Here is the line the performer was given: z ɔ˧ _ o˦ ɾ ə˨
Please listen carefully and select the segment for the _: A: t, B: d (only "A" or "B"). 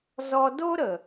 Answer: B